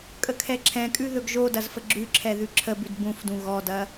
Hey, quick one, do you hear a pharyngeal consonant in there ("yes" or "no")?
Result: no